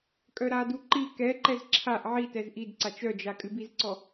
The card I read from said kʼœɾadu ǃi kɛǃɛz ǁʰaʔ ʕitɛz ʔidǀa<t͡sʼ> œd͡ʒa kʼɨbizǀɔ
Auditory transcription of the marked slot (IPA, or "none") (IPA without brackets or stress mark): t͡ʃ